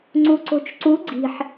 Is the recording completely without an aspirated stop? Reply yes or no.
yes